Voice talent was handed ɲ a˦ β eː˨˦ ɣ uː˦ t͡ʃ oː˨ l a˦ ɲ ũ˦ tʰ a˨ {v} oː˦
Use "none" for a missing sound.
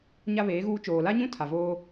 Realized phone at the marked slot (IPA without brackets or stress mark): v